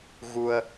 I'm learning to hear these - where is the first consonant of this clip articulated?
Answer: velum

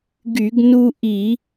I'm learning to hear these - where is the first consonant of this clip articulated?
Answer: velum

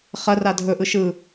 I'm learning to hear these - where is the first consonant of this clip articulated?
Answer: uvula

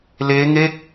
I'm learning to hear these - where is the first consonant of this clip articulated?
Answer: tongue tip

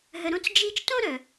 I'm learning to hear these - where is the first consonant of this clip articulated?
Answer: throat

